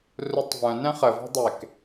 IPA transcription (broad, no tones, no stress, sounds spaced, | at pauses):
r u tˤ v œ̃ n ɛ̃ χ ə v ɔ̤ dˤ e k